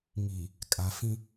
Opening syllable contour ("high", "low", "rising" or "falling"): low